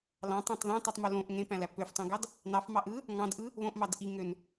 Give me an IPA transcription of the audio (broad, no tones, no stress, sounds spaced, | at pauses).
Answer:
l ɑ̃ tˤ ɑ̃ tˤ ð æ̃ tˤ y tˤ m o l õ ʔ ŋ ẽ p æ̃ l æ p ø f tˤ õ ɡ ɑ d | n ɑ f m ɑ ʔ ɯ | ŋ ɑ̃ d ʔ ɯ | β õ ʔ m ɑ d ʔ i ŋ ø n